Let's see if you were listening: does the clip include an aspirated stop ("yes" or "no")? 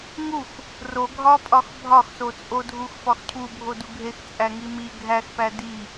yes